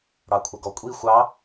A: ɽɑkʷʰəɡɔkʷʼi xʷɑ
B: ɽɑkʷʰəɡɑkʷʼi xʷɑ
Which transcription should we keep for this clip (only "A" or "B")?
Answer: A